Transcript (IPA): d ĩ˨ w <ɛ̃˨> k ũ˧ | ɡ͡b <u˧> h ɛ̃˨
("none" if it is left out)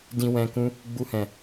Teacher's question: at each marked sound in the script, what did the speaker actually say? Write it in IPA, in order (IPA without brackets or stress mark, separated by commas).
ɛ̃˨, u˧